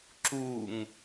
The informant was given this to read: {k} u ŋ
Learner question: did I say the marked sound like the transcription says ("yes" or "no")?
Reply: no